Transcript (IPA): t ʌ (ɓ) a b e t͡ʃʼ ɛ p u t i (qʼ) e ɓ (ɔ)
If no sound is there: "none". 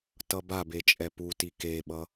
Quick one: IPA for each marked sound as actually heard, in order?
b, k, ʌ

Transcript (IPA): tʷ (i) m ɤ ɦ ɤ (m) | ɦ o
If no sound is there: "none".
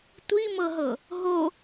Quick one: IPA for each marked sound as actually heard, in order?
i, none

